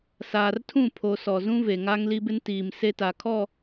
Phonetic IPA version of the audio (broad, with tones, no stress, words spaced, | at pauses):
saː˨rtʰũ˦˨pʰo˨ sɔ˨zũ˦ve˨ ŋa˦ŋli˦bɪ˦n tiː˨m se˦ta˨kʰɔ˦˨